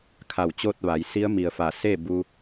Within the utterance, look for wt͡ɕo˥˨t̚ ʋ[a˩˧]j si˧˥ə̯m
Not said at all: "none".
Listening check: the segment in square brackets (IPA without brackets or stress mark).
a˩˧